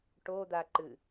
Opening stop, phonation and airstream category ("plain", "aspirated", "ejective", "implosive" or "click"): plain